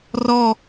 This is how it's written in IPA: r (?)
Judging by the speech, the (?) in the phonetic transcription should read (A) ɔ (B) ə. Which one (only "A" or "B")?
A